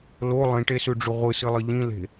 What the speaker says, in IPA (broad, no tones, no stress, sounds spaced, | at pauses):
l o lˠ ĩ ʈ e s ʉ ɖ͡ʐ ʉ ʁʷ ɨ s ɨ lˠ ɨ ʎ ĩ l e̤